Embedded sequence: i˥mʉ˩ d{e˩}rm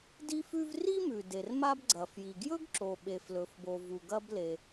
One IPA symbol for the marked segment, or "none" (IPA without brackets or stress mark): e˩